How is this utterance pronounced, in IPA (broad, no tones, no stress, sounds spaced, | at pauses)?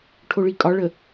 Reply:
ʈʰ o ɭ i kʼ ɒ ɭ ə